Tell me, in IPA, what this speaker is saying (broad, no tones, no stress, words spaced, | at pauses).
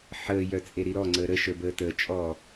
ħəːjœ t͡sʼeɾiɾɔ ŋ͡ǀəːɾə ʃə˞bəːtəː t͡ʃʼɔ